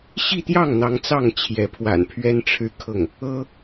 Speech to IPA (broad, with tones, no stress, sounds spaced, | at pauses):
ɕ i˥˧ t̪ j ɑ˥˩ ŋ n̪ ɑ˧˥ ŋ t͡s ɑ˥˩ ŋ t͡ɕʰ j ɛ˧˥ pʰ w a̰˨˩ n pʰ ɥ ɛ˥ n ʈ͡ʂʰ ɻ̩˥ kʰ ɤ˥˩ ŋ | ɤ˥